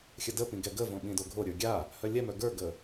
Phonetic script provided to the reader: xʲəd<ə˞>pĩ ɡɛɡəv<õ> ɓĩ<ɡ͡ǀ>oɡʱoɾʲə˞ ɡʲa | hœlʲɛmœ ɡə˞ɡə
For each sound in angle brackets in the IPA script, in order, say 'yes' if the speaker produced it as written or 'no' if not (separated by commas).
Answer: no, yes, no